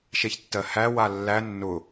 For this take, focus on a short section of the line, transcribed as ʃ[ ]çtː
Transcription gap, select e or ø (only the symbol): e